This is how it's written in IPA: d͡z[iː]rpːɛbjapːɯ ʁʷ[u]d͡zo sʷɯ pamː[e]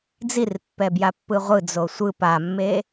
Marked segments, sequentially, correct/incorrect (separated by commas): incorrect, incorrect, correct